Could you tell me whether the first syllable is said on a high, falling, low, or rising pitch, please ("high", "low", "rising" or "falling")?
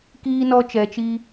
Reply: high